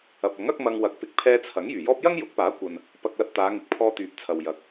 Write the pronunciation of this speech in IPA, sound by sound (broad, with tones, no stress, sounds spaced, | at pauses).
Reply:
ɐ˨ p̚ ɐ˨˥ ŋ ɐ˥ k̚ m ɐ˧ ŋ w ɐ˨˥ k̚ p ɪ˨ k̚ pʰ ɛː˧ t͡sʰ ɐ˨˥ ŋ j yː˨˩ j ɔː˥ p̚ j ɐ˥ ŋ j ʊ˨˥ k̚ p aː˨˥ kʷ ɐ˨ n | p ɐ˧ k̚ l ɐ˧ t̚ t̪ aː˨˧ ŋ ɪ˨ k̚ pʰ ɔː˧ t̪ yː˨ p̚ t͡sʰ ɐ˨ w j ɐ˨˥ k̚